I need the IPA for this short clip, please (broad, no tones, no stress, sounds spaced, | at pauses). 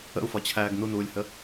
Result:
ə̰ u̯ f ɒ t͡ɕʰ æː ɡ n u n uː lʲ h ə